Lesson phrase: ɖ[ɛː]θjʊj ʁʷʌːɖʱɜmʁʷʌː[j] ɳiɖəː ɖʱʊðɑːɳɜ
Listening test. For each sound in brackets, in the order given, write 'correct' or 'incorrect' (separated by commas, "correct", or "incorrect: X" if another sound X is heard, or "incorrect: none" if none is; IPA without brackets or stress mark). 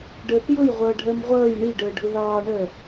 incorrect: əː, correct